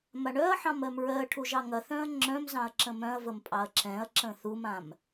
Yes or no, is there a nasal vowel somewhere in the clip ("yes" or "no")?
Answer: yes